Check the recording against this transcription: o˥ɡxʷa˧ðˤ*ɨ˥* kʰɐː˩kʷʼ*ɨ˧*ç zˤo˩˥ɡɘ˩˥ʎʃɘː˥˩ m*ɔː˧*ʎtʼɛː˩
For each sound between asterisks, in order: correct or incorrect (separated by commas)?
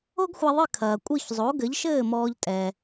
incorrect, incorrect, correct